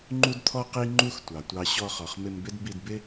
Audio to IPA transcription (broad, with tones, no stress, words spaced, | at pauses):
ŋ͡ǃu˦dt̪ʰɔ˦ qi˦ŋ͡ǃu˦xtʷɑ˨tʷɑ˧ ɕɔ˧χɔ˨χmɪ˧mbɪ˦d bi˧dbɪ˦